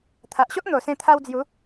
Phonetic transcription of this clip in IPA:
t̪ʰ a˨ ʔ ɕ o˦ ʔ n̪ o˨˩ s ẽ˧ t̪ʰ a˧ w d͡z j u˨˦

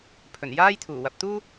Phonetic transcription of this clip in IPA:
pʰ ɵ˨˩ n j aː˥ j t̪ʰ uː˨˩ w ɐ˨ p̚ t̪ uː˥

